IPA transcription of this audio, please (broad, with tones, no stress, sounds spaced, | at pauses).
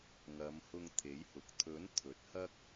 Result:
ŋ ɐ˨˧ m h ʊ˧ ŋ t̪ʰ e˨˥ j h ʊ˨ k̚ t̪ʰ ɵ˨˥ n t̪ʰ ɵ˨˥ t̚ h ɐ˥ k̚